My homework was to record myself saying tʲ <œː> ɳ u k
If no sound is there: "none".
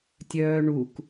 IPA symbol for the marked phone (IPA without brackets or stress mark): œː